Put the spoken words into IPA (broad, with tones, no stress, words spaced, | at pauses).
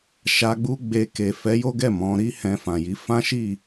ʃa˧ɡ͡bu˦ ɡ͡be˧ke˨ fɛ˨˦jo˦ɡɛ˦˨ mɔ̃˨˦ ɾi˦hɛ̃˧fã˨ji˨˦ fã˦ʃi˦˨